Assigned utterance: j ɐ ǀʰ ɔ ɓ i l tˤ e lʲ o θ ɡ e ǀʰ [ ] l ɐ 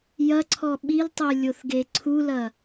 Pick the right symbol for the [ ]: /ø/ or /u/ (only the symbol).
u